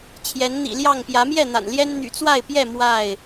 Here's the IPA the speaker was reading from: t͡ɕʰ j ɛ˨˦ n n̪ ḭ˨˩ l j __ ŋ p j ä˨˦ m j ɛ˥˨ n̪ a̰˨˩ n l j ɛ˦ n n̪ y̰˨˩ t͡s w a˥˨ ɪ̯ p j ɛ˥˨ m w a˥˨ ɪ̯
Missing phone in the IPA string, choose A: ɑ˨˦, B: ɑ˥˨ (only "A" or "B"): B